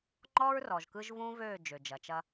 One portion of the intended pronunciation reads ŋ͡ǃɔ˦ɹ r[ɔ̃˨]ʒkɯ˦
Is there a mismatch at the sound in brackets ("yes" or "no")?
yes